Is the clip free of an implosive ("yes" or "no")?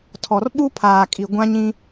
no